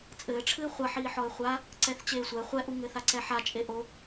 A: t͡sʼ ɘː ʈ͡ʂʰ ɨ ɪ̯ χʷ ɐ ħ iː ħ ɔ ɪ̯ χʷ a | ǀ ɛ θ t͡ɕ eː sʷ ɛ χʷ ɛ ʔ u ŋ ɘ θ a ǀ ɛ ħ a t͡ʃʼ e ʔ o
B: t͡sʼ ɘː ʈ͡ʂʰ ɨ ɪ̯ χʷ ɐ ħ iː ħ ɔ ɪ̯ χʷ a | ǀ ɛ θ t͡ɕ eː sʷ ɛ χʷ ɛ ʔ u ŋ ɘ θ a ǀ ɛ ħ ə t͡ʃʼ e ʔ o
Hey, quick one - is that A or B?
A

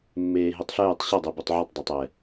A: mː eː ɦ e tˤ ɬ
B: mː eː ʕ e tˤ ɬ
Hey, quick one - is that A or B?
A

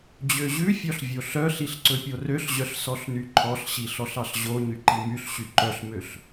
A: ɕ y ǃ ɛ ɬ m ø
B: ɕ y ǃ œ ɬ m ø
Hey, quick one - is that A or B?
B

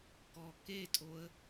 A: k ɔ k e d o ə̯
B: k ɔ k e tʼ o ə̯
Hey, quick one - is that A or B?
B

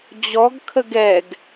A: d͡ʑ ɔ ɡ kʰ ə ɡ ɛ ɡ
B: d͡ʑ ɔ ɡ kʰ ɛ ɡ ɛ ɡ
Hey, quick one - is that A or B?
A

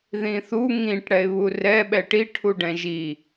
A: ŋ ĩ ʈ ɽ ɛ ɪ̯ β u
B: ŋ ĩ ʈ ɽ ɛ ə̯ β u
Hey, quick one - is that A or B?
A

